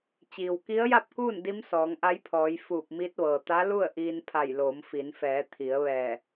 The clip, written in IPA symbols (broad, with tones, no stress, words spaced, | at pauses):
t͡ɕiː˩wki˧˥ə̯ja˥˨p̚kuː˥˨n di˧˥msɔː˩˧ŋʔa˧˥jpʰɔː˩˧j fuː˧˩p̚mi˧˥t̚ʋɤː˩ t̪a˧˥lu˥˨ə̯ ʔiː˧npʰa˧˩jloː˩˧m fi˩˧nfɛː˩˧ t̪ʰi˩˧ə̯ ʋɛː˧˩